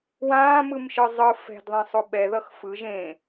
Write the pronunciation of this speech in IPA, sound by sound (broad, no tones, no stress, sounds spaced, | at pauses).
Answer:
w ãː m ɯ m ʃ ɯ zˤ ɯ f ɛ̤ d ðˤ ɛ̃ sˤ o ɓ ɛ ð ʌ x f ɯ ʒ ẽ